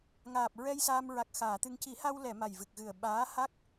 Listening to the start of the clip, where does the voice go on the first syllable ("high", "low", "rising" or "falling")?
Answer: low